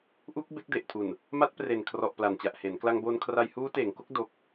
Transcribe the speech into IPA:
ʔ u˦˥ k̚ b e˦˥ k̚ d e˨˩ ʔ tʰ u˨˩ n | m a˦˥ t̚ p r e˨˩ n kʰ r ɔ˨˩ ʔ p l a˨˩ n t͡ɕ a˨˩ ʔ h e˩˦ n k l a˧ ŋ b o˧ n kʰ r a˧ j h uː˦˥ t eː˩˦ ŋ k o˦˥ k̚ d o˨˩ k̚

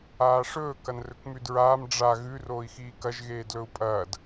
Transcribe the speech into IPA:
aː ʂ ɵː k ɐ n r ɵ k m ʉ d ɹ aː m ɖ͡ʐ a ɣ ʉ r oː i̯ x iː k ɐ ʒ ɣ eː d l ɵ u̯ pʼ ɐː d

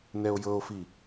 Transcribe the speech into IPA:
n ɛ o̯ j ɤ o̯ f i

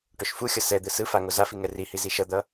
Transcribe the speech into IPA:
ʈ o ʃ f u xʲ ʌ s ɛ d̪ ɯ s ɯ f a ŋ o z a f i ŋ ɛ r i h i z i ʃ ʌ d̪ ʌ

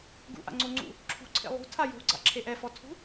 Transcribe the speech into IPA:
ɡ ṵ ʔ a̰ ŋ͡ǀ o ŋ͡ǀ ṵ | ǁʰ ṳ ǀʰ ḛ lˠ ṳ tʰ a j o̤ ɡ͡ǀ a̰ ǁʰ e ʔ ɛ f ɔ tʰ ṳ

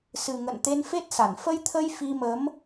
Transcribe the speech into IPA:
s ɨ˨˩ ŋ ə̰˧˨ n t̪ e˧ n f e˦˥ t̚ s a˧˩ n f ə˧ j t̪ʰ ə˧ j f i˧ m ə˨˦ m

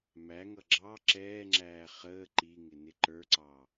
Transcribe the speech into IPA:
m æ ŋ ʌ ɡ͡ǁ ɑ ǁ ɛː ŋ͡ǁ æː χ əː ǃ i ŋ ɪ n ɪ ǃ ə˞ ǀ ɑ

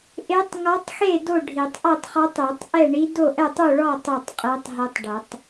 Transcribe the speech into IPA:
ʔ e˧˥ tˤ ŋ ɔ˧˥ tˤ x e˥˨ d o˥˨ ɖʱ i˨˩˦ tˤ ʔ ɐ˥˨ tˤ χ ɔ˧˥ tˤ e˨˩˦ tˤ ʔ ɛ˥˨ ɳ i˧˥ d o˥˨ ʔ ɛ˥˨ tˤ u˥˨ ɭ ɔ˥˨ tˤ o˥˨ tˤ qʼ e˧˥ tˤ ɦ ɛ˧˥ tˤ ɖ ɐ˨˩˦ tˤ

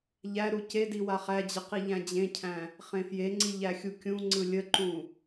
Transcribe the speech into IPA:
ʎ æ ɾ u c e d i w a χ æ d͡ʑ ə q i ʎ æ̃ d͡ʑ ẽ cʰ æ̃ | χ ẽ f j e ŋ͡ǀ i ʎ æ xʲ u kʲ ũ ŋ͡ǀ ɯ lʲ ə ǃ ũ

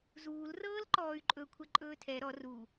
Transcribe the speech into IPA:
z uː l r ɤː l ǃ ɔː y̯ ǃʼ ɵ kʷʰ ɛ ǃʼ ɵː tʰ ɛ ɾ ɔ r u

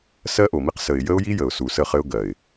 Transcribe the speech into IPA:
s ɜ˦ ʔ o˨ m i˦ q s ə˨ ɪ̯ j ə˦ ʊ̯ j i˦ j ə˨ ʊ̯ s u˨ s ə˦˨ χ ɘ˦ ʊ̯ ɡ ɜ˨ ɪ̯

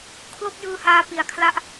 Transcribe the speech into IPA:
kʰ l o˥˩ k̚ j ɯː˧ h aː˧ p i˩˦ a̯ kʰ l a˥˩ ʔ

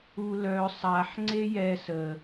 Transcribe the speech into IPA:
u l œ sˤ a ħ ŋ͡ǀ e j ɛ s ə

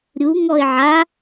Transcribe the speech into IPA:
ɾʲ u ŋ ɔ ɪ̯ ʕ a

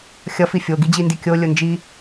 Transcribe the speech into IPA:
xʲ ʌ f i fʲ o ɡ i d͡ʑ i n d i kʲ o lʲ o n d͡ʒ i

